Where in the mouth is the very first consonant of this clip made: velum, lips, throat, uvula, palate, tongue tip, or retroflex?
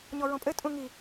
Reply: palate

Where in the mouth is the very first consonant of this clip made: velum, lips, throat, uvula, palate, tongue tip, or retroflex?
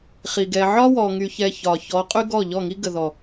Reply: uvula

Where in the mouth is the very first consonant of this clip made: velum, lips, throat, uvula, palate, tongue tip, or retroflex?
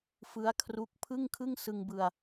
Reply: lips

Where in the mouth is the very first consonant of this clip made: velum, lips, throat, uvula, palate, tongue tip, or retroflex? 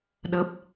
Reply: tongue tip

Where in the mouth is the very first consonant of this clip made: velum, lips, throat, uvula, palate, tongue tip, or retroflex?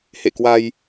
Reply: throat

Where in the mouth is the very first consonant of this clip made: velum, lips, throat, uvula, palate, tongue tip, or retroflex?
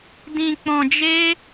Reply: tongue tip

